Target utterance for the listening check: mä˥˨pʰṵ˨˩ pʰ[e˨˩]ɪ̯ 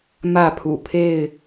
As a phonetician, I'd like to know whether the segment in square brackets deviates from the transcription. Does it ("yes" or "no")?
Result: yes